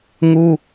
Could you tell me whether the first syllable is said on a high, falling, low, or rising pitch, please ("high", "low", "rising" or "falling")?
high